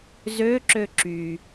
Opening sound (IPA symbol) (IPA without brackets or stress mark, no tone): z